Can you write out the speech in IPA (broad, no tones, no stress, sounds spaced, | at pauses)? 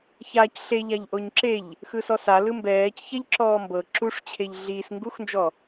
ç a c ɬ e ʎ a ʎ ʔ o ɲ ǁ e ʎ | x ɯ s ɔ s a l ɯ m b ɛː c ç ɛ ʎ ǁ ɔː m b ɤ ǁ u ʂ t͡ɕʰ e ʎ ɮ i s ŋ ɡ u x n d͡ʒ ɔ